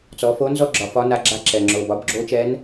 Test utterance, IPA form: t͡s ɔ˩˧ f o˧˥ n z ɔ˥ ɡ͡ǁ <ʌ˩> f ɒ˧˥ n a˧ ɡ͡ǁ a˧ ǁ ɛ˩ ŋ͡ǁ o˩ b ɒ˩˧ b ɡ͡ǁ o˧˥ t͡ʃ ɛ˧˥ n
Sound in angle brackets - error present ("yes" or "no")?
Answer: yes